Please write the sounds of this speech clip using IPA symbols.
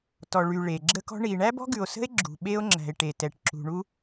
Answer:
t ɔ˨ ɭ y˨ ɭ e˨ ɡ͡ǁ ə˦ k ɔ̤˦ ɳ i˨ ɳ æ˦ b ɔ̤˦ ɡ ʉ˨ o̯ s ə̤˦ e̯ ɡ͡ǁ ṳ˨ ɓ e˦ o̯ ŋ͡ǁ æ̤˨ e̯ ʈ e˨ t ɛ˨ ʈ ǁ ṳ˨ ɳ u˦

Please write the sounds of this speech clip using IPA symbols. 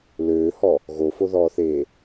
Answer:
l øː h ɔ | ɣ o f o ð ɔː θ eː

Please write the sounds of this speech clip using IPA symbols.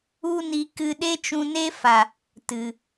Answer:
u˦ n i˧ k ɨ˧ ɗ e˦ t͡ʃ ũ˧ n e˦ f a˨ | t ɨ˨

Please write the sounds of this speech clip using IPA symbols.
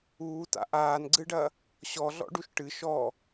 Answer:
uː t a̰ ʔ aː n ɡ͡ǀ ɨ ɖ ɐ | ɕ ɔ ɮ ɔ̰ ɖ u ʃ ʈ ɨ ʃ ɔ

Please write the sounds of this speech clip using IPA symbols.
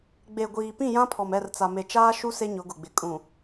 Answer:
ɡ͡b e˨ ɡʷ iː˨ p ĩ˦˨ j ã˦ pʰ ɔ˨ m ɛ˦˨ r t͡s a˨ m e˨ t͡ʃ aː˦ ʃ u˦ s e˦ ɲ ʊ˨˦ ɡ ʊ˨ ɡ͡b ɪ˨ kʼ ũ˨

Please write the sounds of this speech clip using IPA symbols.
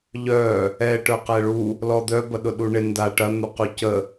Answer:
ʎ œ | ɛ ʈ œ q ɛ ɭ u | l ɔ d̪ œ b ɐ ɗ ʊ ɗ u ɳ ɪ n d a ʈ ɐ n̪ u q u c ə

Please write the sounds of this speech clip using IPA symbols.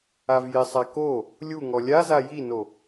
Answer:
a v j ɪ sˤ a k o | lʲ u ŋ ɔ lʲ a z a j i n o

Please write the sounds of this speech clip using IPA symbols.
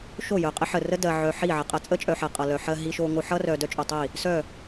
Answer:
ʃ o˦˨ j œ˨ qʼ ə˦ ħ ə˨ r ə˦ d ɜ˨ ʕ œ˨ ħ i˦˨ ʕ ʌ˨ qʼ ɜ˨ t͡sʼ ə˦ t͡ʃʼ œ˨ ħ ɜ˨ qʼ ʌ˨ l œ˨ ħ ɜ˨ ɦ i˨ ʃ o˨ ŋ o˨ ħ ʌ˦ r œ˨ d œ˦ t͡ʃʼ œ˨ tˤ i˦˨ | s œ˦˨

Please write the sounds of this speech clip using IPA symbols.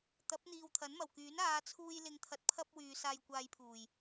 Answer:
t̪ ɐ˨˥ p̚ n̪ iː˨ w t̪ʰ ɐ˨˥ n m ɐ˨˩ w k yː˨˥ n aː˨˧ t͡sʰ uː˧ j l ɪ˨˧ ŋ t̪ʰ ɐ˧ t̚ pʰ ɐ˥ p̚ w yː˨˧ s aː˧ j kʷ aː˧ j pʰ uː˨˩ j

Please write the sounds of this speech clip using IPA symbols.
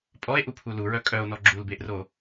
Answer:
pʼ ɔ e̯ ʔ u pʰ u l u ɹ œ kʼ œ o̯ n ɔ ɡ͡ǁ u l b e ʔ r o

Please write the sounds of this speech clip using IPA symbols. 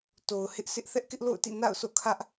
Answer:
t o˨ ʊ̯ h ɪ˦ ʔ sʰ ɪ˦ ʔ θ ɛ˦ ʔ k ɪ˦ ʔ l o̰˦˨ ʊ̯ t ḭ˦˨ n a̰˦˨ ʊ̯ s o̰˦˨ kʰ ä˦ ʔ

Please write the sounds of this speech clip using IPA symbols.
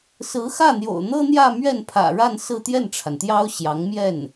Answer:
s ɹ̩˧˥ x ä˥˩ n̪ j o̰˨˩ ʊ̯ n̪ ɤ˥ n̪ j ä˥˧ m ɥ ɛ˥˩ n pʰ ä̰˨˩ ɻ a˥˧ n s ɹ̩˥˧ t̪ j ɛ˥˩ n ʈ͡ʂʰ a˩ n t̪ j ɑ˥ ʊ̯ ɕ j ɑ˧˥ ŋ m j ɛ˥˩ n

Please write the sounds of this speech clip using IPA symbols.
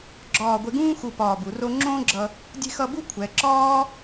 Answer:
ɡ͡ǁ ɒː˧˩ ɡʷ e˧ ɡ ũː˥ x u˧˩ p ɒː˧˩ b u˩˧ r o˥ ŋ͡ǁ õː˥ ɡ͡ǁ ʌ˧ | dʲ e̤˥ x ʌ˥˧ b u˥ kʷʰ ɛ˩˧ ǁ ɒː˥

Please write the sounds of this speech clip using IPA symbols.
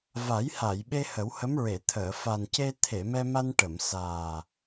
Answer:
v a˨˩˦ j h a˨˩˨ j ɓ e˧ h ə˨˩˦ w h ə˧˥ m ɹ e˨˩˨ t̪ʰ əː˨˩˨ f a˨˩ n c e˧ t̪ʰ e˨˩˨ m ɛ˧ m a˧ n ʈ ə˨˩˨ m s aː˨˩

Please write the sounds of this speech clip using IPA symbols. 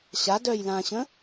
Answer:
ɕ a d œ j l ã ɕ ə̃

